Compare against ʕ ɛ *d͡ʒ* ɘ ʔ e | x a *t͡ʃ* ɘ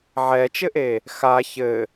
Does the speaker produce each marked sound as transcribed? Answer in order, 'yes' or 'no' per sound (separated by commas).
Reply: no, no